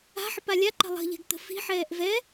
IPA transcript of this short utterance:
a̤ ħ ə p a lʲ a ǃ ə̤ lˠ ə̤ ʎ ɛ̤ ɡ t̪ ə̤ f i̤ ħ ɛː ʔ v ɛ

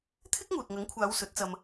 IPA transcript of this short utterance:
t̪ʰ ɪ˥ k̚ ŋ uː˨ t̚ ŋ ɐ˨˥ ŋ kʷʰ aː˨˧ w s ɵ˨˥ t̚ t͡s ɐ˧ m

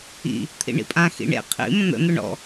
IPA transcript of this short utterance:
ḭ | t̪ʰ ḭ ɳ ḭ pʼ ã x ḭ ɳ ḛ qʰ ḭ m ə̃ n̪ ə̰ n̪ ʊ ɳ ɔ̰

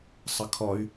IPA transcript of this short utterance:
sˤ ə kʰ ɔ y̯

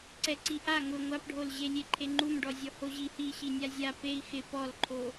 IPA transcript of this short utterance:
ǀ ɛ ǀ i ʔ a ŋ ʊ ŋʷ a p ɖʱ o l ʑ e lʲ e ǃʰ e ŋ͡ǃ u m ɖ ɔ zʲ ɔ h o ʑ i h i ɕ i nʲ a zʲ a p e i̯ x ɪ p ɔ l ǃʰ o

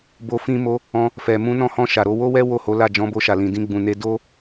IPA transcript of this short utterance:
b o˧ f ĩ˧ m o˧ | ɔ̃˧ | f ɛ˨ m ũ˧ n ɔ̃˧ h ɔ̃˧ ʃ a˨ ɾ o˧ w o˦ w ɛ˦ w o˦˨ h o˨˦ l a˦˨ d͡ʒ ɔ̃˨˦ b o˧ ʃ a˨ l ĩ˨ d ĩ˧ ɡ͡b ũ˨ n e˧ d o˦

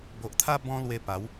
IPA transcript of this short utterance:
b o˨ ʔ t̪ʰ a˦ b ɔ̃˧ l w e˧ p a˨˦ w

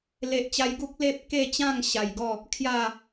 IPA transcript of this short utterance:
l e˨ ʔ t͡ɕ a˧ j ɡ u˦ k̚ l e˦ p̚ k e˥˧ t͡ɕ ã˥˧ ŋ ɕ a˨˩ j ɡ ɔ˥˧ | kʰ j a˥˧

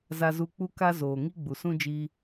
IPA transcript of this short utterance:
z a˧ z u˧ k͡p u˦ k a˦ z oː˨ ŋ i˦ ɡ͡b u˨ s ũ˦ d͡ʒ iː˧

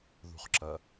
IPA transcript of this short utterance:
ð ṳ χ ǁ ɐ

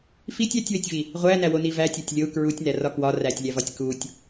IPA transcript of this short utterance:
f i tʲ æ tʲ w e tʲ v i | ʁʷ æ n æ w o n i v æ tʲ ɒ tʲ lʲ o u̯ k ɹ u tʲ n æ r ɒ k w ɒ r æ tʲ lʲ æ v ɒ tʲ k u tʲ

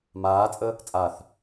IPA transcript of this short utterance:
m aː t͡sʼ ə | t͡sʼ a θ

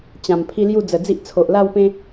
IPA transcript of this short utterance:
t͡ɕ ã˨˩ m pʰ i˦ l j u˥˧ d͡z ə˨˩ d͡z i˦ ʔ t͡sʰ o˨ ʔ l a˥˧ w p ẽ˦

